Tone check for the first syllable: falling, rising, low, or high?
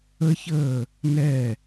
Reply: high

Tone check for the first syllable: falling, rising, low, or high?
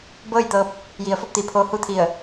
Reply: falling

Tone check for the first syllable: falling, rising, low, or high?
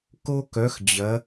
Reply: high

